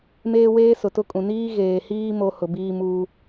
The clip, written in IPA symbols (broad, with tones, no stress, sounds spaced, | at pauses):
m eː˦ w eː˦ s ʊ˨ t ʊ˦ kʼ ũ˨ n iː˦ ɣ eː˨ h iː˦ m o˦ h ʊ˨ b iː˦ m uː˦